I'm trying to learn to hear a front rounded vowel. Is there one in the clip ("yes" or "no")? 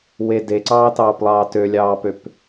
yes